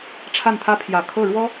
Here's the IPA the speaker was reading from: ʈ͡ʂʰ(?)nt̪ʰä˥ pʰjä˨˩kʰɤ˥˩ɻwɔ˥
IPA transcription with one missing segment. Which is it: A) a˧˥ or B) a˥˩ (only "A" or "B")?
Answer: B